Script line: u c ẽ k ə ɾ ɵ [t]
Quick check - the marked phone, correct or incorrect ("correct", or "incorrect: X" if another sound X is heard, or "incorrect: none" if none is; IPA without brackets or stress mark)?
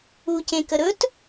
correct